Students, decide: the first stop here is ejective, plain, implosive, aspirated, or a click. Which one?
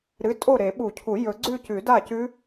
ejective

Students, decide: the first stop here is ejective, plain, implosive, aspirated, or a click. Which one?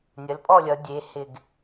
ejective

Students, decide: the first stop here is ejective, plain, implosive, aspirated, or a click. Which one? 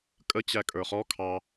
ejective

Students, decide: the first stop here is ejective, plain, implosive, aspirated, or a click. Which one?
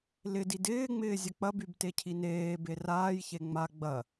plain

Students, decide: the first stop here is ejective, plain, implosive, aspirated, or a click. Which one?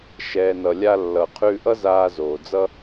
aspirated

